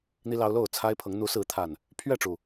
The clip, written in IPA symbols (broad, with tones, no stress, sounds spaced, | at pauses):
n̪ i˦ l ɑ˦ ʊ̯ l o˥˨ ʊ̯ t͡sʰ a˦ ɪ̯ pʰ ɤ˨˦ ŋ n̪ u˨˦ s ɹ̩˨˦ t̪ʰ a˨˩ n | pʰ ɥ ɛ˥˨ ʈ͡ʂ u˨˩